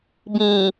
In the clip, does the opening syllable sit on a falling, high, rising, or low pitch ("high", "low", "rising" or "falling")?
low